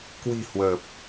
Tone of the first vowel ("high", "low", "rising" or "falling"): low